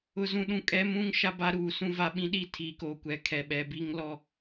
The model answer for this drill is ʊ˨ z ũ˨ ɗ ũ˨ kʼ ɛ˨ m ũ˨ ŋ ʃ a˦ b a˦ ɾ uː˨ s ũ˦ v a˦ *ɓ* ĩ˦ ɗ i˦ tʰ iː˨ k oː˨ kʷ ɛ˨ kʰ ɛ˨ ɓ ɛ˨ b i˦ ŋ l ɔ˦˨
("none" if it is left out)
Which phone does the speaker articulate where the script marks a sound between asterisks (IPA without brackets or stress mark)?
ɓ